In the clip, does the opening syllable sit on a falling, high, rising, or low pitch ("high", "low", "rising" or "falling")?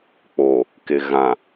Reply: low